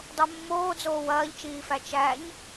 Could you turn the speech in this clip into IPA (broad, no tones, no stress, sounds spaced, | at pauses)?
dˤ o mː oː d͡z oː w ɐː ʎ t͡ʃ iː f æ t͡ʃ æ ɲ